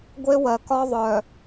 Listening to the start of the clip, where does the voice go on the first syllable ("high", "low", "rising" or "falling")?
high